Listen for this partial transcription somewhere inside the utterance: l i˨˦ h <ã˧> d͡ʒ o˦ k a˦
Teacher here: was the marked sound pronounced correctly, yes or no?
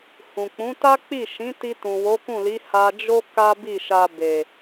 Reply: no